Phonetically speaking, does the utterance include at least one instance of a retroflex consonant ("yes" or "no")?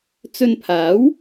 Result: no